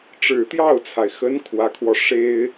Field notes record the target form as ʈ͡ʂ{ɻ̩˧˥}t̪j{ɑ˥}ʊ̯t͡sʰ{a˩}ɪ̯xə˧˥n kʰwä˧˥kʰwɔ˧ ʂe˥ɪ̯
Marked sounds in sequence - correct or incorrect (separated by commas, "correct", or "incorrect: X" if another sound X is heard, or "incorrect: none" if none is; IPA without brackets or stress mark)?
incorrect: ɻ̩˨˩, incorrect: ɑ˥˩, correct